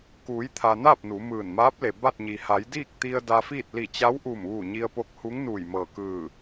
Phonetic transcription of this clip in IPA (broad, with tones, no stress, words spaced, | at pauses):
kuː˩˧jt̪ʰa˩ naː˥˨p̚ nu˩˧mɯː˧˩n maː˧˥p̚le˩ ba˥˨t̚ɲi˩ ha˩˧jdiː˥˨k̚ t̪i˧ə̯ da˧fiː˥˨t̚ li˧˩t͡ɕa˧˥wʔu˧˩mʋu˧˩ ɲi˧ə̯po˧˥k̚hu˧˥ŋnuː˧˩j mɤː˧˩kɯː˧˩